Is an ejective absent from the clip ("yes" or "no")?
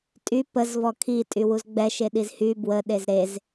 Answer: no